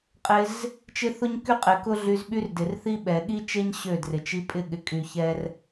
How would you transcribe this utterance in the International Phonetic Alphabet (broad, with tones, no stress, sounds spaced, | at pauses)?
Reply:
qʼ ɪ˧ z | t͡ʃ ɪ˦ θ ʊ˦ ɲ k y˦ qʼ ɪ˨ k ʊ˦ ɮ y˧ z ɓ y˦ r d ɪ˨ r θ i˦ ɓ ɛ˨ ɠ i˦ t͡ʃ e˦ ɲ ɕ ø˦˨ d r ɪ˨ t͡ʃ i˧ pʼ ɪ˦˨ ɠ ɪ˨˦ kʼ y˧ ç ɛ˦ r